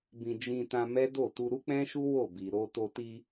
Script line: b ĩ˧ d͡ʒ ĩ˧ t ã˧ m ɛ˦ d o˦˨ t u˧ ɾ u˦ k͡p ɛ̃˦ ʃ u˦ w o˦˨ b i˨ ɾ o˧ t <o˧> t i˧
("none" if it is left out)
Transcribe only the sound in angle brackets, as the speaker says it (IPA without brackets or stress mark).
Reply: o˧